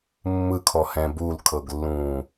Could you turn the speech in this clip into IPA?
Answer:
mː ɯ kʰ ɔ h ɛ̃ b u l kʰ ɤ ɡ lː ũː

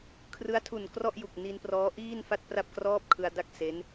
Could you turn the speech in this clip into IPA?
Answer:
kʰ r ɯ˦˥ a̯ tʰ u˨˩ n k r ɔ˥˩ ʔ j u˨˩ k̚ n i˧ n p r ɔː˦˥ ʔ iː˥˩ n f a˥˩ t̚ p r a˥˩ p̚ k r ɔː˥˩ p̚ kʰ ɯ˧ a̯ d a˥˩ k̚ s e˦˥ n

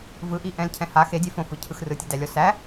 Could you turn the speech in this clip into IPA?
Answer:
v ɯ ʔ i ʔ ɛ̃ l cʰ ɛ̃ h a x e dʲ ɛ f õ f ɯ cʰ ɯ x r ɯ tʲ i d æ lʲ ɔ s æ

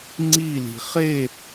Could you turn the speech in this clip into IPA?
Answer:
ŋ͡ǀ i l i̤ χ e

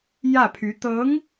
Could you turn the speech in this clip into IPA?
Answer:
j ä˥˩ pʰ y˧˥ t̪ ɤ˧˥ ŋ

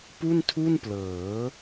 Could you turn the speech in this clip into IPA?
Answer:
p u˥˩ n tʰ u˥˩ n p l ɤː˩˦

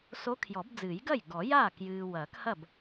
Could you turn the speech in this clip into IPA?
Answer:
s o˧˥ kʰ j ɔ˨˩˦ b d͡z ɨː˨˩˦ j ɡ ɐ˥˩ j ɡ ɔ˨˩˦ j aː˥˩ k j ɨː˨ w ɐː˨˩˦ k h ɐ˥˩ b

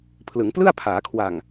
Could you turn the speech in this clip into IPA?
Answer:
pʰ l ɯ˩˦ ŋ p l ɯ˥˩ a̯ pʰ aː˩˦ kʰ w a˨˩ ŋ

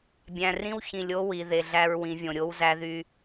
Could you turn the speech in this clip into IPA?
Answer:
bʲ æ̃˨ r ĩ˦ w ç ĩ˨ lʲ o˦ w i˨ ð e˨ ɮ æ˦ ɹ w ĩ˨˦ vʲ õ˨ ɾʲ o˦ w z æ˦ ð y˦

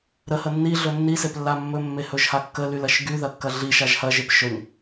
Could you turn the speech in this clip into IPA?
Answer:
ɾ ə h ə nː i ɮ ɵ nː i s e p lː a mː ɵ mː e h ɵ ʒ h a kː ə l y l ɐ ʃ ɡ y ð ɐ kː ɐ ɮ i ʃ a ʒ h ɐ ʒ e p ʃ ɵ ɲ

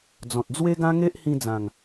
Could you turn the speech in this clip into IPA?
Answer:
d͡z ɔ̃˨ t̚ d͡z w e˦ ɡ ã˦ ŋ e˦ ʔ h ĩ˧ d͡z ã˨˩ ŋ

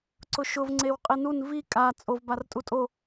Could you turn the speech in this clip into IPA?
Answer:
ǀ ʊ ʃ ʊ v ŋ͡ǀ e w qʼ i n u n v i kʼ a t͡sʼ o v b a r tʼ u tʼ o

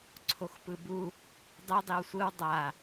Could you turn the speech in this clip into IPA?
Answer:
ǀʰ o x p ɯ b u | dˤ ɯ dˤ i w sʷ ɯ w dˤ a

